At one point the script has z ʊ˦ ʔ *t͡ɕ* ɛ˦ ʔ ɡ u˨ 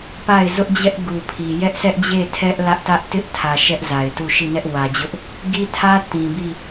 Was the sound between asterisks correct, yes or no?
no